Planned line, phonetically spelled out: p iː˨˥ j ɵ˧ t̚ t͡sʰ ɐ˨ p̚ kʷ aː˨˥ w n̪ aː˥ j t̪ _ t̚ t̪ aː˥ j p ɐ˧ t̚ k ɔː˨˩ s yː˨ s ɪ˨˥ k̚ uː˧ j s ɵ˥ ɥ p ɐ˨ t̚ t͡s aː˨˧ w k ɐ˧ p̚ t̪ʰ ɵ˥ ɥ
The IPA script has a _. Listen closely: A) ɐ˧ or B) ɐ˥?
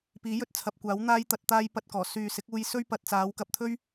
A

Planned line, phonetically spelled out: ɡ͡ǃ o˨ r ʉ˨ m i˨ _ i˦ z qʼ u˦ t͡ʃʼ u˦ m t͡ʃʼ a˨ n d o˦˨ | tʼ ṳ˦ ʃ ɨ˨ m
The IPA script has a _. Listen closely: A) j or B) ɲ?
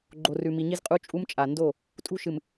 B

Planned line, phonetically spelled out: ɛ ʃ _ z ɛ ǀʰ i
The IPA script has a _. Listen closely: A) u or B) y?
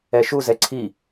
A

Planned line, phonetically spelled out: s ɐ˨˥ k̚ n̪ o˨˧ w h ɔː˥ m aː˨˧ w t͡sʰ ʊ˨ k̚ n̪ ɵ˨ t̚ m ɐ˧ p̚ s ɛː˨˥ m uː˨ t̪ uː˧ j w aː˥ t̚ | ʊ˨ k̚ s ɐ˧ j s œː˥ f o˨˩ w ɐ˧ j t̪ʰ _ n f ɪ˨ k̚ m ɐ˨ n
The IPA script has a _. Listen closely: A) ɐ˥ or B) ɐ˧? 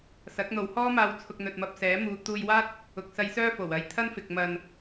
A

